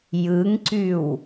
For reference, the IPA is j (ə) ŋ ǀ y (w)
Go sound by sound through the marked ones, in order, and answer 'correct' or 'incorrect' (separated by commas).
incorrect, correct